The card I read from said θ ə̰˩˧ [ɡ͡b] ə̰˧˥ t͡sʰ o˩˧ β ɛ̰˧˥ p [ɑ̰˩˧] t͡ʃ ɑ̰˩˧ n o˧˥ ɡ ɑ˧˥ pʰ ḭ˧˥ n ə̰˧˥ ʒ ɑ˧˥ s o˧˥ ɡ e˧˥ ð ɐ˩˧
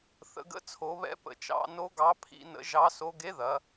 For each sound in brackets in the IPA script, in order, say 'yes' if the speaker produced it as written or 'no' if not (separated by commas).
no, no